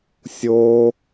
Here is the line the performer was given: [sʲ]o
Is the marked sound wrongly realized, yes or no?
no